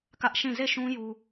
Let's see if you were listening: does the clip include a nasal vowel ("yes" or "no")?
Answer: yes